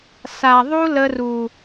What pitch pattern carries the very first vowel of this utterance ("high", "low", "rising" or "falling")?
low